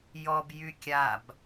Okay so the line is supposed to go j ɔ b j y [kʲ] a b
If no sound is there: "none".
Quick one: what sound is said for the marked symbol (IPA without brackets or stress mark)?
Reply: kʲ